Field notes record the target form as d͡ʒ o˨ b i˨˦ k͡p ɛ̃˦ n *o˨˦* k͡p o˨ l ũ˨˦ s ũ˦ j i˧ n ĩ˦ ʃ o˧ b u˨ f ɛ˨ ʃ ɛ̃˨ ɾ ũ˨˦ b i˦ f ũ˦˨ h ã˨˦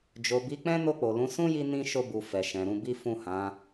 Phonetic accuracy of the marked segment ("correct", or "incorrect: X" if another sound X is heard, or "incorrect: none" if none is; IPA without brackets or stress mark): incorrect: o˦˨